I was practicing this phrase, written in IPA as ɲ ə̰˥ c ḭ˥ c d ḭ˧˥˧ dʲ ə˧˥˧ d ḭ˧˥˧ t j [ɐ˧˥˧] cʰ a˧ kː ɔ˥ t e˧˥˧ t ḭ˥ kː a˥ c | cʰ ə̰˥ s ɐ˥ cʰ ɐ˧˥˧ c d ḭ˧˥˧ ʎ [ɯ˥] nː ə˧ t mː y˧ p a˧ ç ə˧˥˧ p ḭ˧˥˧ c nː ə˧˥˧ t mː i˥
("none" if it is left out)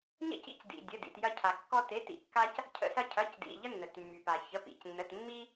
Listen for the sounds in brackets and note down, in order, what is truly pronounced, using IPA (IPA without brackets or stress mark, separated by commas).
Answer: ɐ˥, ə˥